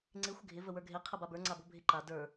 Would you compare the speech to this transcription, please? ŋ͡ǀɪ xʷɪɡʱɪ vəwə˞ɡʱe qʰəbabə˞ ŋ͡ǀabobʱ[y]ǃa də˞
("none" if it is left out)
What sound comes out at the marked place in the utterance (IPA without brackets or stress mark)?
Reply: ɪ